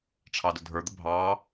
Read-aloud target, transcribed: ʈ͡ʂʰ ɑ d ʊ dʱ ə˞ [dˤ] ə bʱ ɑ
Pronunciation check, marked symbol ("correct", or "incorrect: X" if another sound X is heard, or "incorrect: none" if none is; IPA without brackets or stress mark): incorrect: d̪